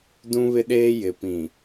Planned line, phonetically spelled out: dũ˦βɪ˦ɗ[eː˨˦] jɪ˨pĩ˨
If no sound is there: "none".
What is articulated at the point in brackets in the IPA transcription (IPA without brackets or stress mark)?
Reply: eː˦